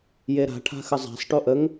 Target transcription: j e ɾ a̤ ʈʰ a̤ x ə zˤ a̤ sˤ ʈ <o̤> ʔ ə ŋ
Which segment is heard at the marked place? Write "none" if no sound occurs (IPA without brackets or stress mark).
o